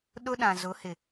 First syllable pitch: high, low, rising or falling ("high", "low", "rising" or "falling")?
high